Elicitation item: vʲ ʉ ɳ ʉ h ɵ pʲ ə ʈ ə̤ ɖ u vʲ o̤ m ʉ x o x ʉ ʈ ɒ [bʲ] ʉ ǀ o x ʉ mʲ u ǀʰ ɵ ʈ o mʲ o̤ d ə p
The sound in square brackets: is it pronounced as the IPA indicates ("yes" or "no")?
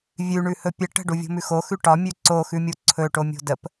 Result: no